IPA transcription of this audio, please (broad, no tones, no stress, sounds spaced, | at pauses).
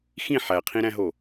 x ĩ ħ æ qʰ ĩ ɾ æ̃ ɦ o